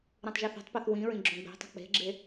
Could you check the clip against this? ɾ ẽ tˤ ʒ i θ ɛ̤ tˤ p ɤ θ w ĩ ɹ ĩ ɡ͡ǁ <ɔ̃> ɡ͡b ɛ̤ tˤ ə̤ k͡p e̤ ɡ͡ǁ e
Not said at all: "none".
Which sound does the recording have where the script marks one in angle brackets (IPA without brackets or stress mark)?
õ